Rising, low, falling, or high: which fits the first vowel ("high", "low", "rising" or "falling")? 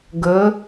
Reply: rising